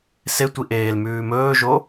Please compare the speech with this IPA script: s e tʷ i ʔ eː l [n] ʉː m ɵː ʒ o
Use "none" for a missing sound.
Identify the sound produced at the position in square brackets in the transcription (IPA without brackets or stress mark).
m